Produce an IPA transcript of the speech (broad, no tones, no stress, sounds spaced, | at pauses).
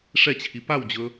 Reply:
ʂ ɛ t͡ɕʰ i p a w d͡ʑ ɵ